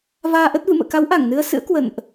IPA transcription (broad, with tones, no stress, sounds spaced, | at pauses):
v aː˧ ʔ ə˦˥ t̚ v ɨ̰˧˨ m ə̰ː˧˨ k a˨˦ w ʔ a˧˩ ŋ n ɨ˧ ə̯ s ɨ̰˧˥ ə̯ k w ə̰˧˨ n ʔ